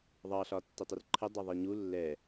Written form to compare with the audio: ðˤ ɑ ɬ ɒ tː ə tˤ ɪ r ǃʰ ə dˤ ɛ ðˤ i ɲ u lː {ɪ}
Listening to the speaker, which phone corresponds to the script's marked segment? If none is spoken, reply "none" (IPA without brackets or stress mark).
ɛ